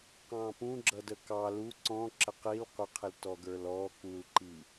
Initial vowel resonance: nasal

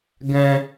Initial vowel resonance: nasal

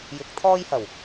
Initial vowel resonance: oral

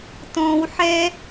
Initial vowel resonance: nasal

